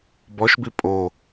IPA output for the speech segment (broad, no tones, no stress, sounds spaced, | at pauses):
b ɔ ʃ b i pʼ o